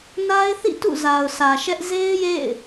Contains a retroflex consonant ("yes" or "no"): no